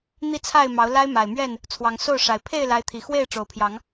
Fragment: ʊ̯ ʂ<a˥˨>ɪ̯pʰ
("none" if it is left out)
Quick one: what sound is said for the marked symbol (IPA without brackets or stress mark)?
a˨˩